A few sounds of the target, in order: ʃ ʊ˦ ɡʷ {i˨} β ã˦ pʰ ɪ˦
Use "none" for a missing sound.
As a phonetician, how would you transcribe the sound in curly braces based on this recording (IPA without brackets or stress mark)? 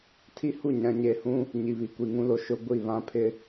i˦˨